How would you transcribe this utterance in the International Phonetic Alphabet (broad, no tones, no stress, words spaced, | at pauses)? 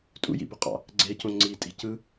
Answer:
tʼṵjḭboqʼɑ̰ | ɡ͡ǀecõ ŋ͡ǀitʼi̤ cɯ